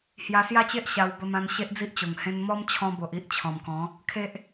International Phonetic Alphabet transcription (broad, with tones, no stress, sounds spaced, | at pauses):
h j a˧ s j a˦ t͡ɕ e˦ ʔ ɕ a˧ w b ə˧ m ã˧ n ɕ e˦ ʔ d͡z i˦ ʔ t͡ɕ o˨˩ ŋ h ẽ˧ n m ɔ˦ m t͡ɕʰ ɔ̃˧ b o˨ ʔ i˦ ʔ t͡ɕʰ ɔ̃˨˩ m k ɔ̃˨˦ | kʰ e˦ ʔ